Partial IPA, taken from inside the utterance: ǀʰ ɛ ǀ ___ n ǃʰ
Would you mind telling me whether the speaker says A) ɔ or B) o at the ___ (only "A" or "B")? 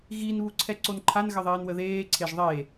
B